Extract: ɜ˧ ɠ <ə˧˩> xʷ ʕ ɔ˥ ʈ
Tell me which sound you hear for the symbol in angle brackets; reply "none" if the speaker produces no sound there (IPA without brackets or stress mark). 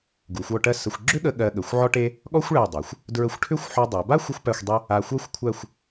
ə˩˧